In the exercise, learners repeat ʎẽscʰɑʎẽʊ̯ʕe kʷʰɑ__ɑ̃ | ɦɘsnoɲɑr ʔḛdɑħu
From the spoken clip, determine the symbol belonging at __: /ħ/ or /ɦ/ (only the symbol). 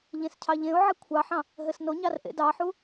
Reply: ħ